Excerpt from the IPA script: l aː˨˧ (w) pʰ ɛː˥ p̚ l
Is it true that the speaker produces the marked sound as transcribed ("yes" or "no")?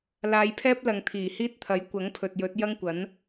no